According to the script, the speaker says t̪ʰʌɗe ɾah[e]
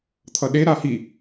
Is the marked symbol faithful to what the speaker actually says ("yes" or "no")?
no